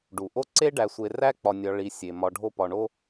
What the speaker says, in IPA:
ɖ u˩ ʔ o˥ ǀ e˥ ɖ æ˨ sʷ e˨ r æ˥ k͡p ɒ˨ nʲ ɒ˨ ɭ i˨ sʲ e˩ m ɒ˨ ɖʱ o˦ p ɒ˨ ɳ o˥

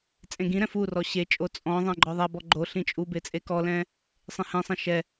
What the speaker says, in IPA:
t͡sʼ ẽ ɡ ĩ ɾ ɛ̃ f u r ɔ ɕ e t͡ʃʼ o t͡sʼ ɔ̃ ðˤ ɛ̃ ɡ͡ǃ ɔ ðˤ a b ɔ ɡ͡ǃ o ɬ ĩ t͡ʃʼ u b e t͡sʼ e k ɔ l ɛ̃ | sˤ ẽ h ẽ sˤ ɛ̃ ʃ ɛ

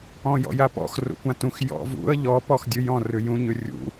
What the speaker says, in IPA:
ɔ̃ j ɔ̰ j a p ɔ̰ x r ṵ kʷ ã t ũ x j ɔ̰ v ṵ ə̯ ʎ ɔ p ɔ x dʲ ʉ j ɔ̃ r ʉ j ũ ɲ ʉ rʲ ṵ

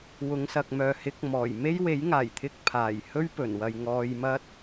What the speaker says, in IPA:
w ʊ˨˧ ŋ s ɐ˨ k̚ m œː˨ h ɪ˨˥ k̚ m ɔː˨˩ j m e˥ j w e˨˥ j ŋ aː˨˩ j t̪ʰ ɪ˧ k̚ pʰ aː˨˩ j h ɵ˥ ɥ p ɵ˨˩ n w ɐ˨ j ŋ ɔː˧ j m ɐ˥ t̚

